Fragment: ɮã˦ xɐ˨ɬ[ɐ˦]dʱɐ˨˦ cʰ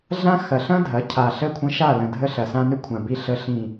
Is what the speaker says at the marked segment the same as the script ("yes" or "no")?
no